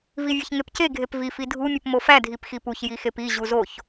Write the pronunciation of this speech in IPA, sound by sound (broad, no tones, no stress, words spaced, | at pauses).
vivʲeçŋepce ɡʱepvi fidʱu mʲupmofæ dʱipxipuç jixepi ʑuzoç